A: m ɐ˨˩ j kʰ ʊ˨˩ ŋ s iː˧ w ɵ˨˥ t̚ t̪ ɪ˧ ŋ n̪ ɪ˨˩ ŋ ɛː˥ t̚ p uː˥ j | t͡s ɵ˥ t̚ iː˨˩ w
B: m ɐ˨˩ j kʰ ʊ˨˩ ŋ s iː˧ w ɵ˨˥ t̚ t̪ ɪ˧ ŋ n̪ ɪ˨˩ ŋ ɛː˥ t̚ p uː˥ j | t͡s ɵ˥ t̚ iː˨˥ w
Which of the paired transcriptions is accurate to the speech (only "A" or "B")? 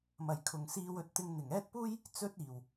A